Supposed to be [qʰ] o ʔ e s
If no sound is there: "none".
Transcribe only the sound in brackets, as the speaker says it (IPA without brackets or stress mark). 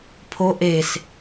pʰ